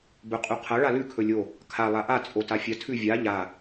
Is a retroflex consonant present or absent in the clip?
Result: present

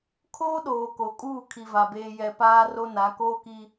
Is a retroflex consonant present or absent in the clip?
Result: absent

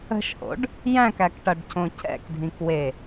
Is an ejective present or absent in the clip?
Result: absent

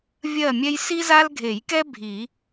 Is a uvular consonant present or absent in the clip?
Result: absent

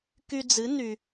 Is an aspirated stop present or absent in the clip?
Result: absent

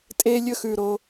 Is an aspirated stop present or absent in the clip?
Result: absent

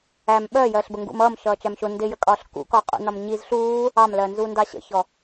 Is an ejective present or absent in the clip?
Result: present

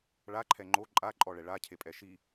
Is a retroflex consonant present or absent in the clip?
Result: present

